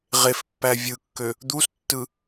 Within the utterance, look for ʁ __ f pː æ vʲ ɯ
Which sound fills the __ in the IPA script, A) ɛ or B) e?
B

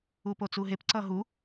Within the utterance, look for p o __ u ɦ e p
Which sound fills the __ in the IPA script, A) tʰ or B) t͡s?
B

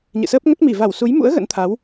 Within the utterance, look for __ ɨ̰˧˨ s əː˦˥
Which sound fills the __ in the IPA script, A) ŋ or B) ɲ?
B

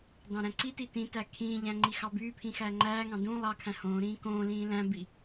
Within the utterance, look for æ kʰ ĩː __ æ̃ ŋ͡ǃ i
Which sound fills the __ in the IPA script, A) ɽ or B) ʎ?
B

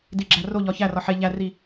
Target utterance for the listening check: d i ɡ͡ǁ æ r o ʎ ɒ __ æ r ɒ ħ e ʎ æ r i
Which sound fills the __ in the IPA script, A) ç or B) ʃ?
A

